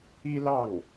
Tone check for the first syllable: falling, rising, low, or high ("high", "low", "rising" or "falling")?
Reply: high